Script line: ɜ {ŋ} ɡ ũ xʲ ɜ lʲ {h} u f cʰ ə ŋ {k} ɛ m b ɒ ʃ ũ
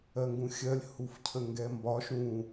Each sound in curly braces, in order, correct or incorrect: correct, correct, incorrect: ɡ

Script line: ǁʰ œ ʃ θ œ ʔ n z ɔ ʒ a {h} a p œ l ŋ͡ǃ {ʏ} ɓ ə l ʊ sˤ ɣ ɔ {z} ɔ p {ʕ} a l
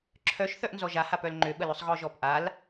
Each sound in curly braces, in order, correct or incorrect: correct, correct, incorrect: ʒ, incorrect: ʔ

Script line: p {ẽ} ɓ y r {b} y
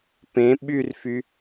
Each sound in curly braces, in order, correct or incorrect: correct, incorrect: f

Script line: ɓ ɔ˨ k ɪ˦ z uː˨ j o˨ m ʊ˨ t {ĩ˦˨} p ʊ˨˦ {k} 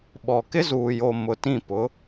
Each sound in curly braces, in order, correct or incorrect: correct, incorrect: none

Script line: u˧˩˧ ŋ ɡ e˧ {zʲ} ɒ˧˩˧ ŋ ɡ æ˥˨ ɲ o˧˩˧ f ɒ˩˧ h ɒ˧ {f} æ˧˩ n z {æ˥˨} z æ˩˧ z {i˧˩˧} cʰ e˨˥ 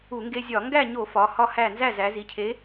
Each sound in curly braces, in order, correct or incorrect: correct, incorrect: h, correct, incorrect: i˩˧

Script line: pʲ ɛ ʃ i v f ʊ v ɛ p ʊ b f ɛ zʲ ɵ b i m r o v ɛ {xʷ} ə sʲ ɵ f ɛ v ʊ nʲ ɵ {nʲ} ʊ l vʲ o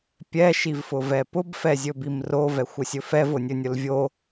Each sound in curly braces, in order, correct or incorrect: correct, correct

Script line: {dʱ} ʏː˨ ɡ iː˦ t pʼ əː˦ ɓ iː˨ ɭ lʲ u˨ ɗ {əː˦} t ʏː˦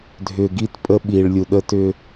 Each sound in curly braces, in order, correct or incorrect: correct, incorrect: ə˦

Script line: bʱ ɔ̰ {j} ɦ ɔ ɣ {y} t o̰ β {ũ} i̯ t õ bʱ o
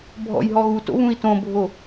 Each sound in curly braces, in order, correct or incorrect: correct, incorrect: u, correct

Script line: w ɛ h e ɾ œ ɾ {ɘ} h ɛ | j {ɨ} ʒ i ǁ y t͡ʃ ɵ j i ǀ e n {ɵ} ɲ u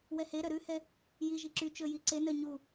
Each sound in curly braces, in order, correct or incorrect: incorrect: ʉ, incorrect: i, incorrect: œ

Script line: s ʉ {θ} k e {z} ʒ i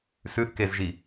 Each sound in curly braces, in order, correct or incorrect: correct, correct

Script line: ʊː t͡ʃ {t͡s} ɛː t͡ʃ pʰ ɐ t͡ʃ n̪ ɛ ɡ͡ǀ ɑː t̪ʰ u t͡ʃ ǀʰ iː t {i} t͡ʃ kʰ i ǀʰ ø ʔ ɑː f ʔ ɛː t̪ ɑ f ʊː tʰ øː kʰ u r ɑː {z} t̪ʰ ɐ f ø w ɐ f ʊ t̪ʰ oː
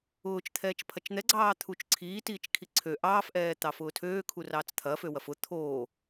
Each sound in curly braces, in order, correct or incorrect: incorrect: t̪ʰ, incorrect: iː, incorrect: t͡s

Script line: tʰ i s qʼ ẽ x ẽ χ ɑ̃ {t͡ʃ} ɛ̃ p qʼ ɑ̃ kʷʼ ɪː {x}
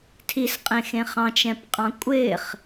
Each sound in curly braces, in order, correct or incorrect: correct, incorrect: χ

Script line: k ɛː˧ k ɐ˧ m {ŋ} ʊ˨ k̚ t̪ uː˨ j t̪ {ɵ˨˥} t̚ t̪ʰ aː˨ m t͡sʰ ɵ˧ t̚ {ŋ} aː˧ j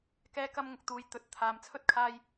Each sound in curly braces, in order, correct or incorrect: correct, correct, incorrect: kʰ

